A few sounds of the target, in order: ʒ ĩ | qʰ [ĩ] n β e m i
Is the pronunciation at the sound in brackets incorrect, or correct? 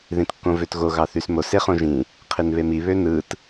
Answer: incorrect